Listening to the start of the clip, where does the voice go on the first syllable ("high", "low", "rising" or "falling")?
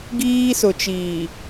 high